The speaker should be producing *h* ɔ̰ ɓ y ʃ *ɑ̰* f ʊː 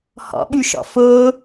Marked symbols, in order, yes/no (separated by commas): yes, no